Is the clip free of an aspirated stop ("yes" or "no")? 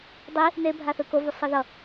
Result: yes